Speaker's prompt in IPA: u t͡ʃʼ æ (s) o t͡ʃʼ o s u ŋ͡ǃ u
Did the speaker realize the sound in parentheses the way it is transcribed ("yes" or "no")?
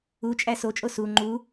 yes